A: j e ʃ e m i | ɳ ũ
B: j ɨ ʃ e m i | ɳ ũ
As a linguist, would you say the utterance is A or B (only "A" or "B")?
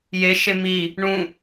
A